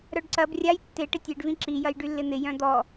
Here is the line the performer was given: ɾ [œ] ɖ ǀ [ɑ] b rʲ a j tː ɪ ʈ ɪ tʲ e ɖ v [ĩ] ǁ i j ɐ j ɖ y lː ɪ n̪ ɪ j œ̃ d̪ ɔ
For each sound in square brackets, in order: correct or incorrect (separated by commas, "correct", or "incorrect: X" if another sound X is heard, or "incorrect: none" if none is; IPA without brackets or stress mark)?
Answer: correct, incorrect: ɐ, correct